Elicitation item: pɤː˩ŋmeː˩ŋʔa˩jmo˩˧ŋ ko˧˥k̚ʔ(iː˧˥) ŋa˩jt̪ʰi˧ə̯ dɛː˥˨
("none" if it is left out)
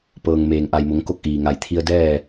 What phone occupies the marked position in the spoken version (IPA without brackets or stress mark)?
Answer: iː˩